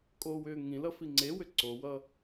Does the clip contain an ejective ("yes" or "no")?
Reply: yes